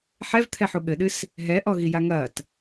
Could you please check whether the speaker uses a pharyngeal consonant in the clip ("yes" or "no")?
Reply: yes